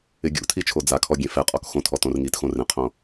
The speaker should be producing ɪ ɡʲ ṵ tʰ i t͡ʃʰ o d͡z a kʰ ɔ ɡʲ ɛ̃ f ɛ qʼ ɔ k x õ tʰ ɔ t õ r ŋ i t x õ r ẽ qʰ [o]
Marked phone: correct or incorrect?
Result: incorrect